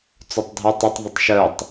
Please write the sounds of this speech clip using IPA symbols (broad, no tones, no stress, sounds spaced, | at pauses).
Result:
t͡s o tˤ dʱ ɔ tˤ ə tˤ ðˤ ə tˤ ʃ œ tˤ